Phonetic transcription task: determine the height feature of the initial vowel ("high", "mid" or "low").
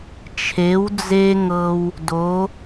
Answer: mid